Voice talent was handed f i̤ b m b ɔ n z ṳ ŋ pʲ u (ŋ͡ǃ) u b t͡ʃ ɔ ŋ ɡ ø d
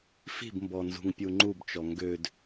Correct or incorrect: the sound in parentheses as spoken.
correct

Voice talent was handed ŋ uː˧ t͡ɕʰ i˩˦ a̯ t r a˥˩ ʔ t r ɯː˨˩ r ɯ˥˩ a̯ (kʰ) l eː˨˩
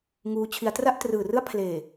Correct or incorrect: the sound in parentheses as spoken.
incorrect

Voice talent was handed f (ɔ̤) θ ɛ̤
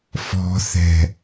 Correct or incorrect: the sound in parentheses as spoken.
correct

